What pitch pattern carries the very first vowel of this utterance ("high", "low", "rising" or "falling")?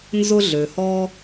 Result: high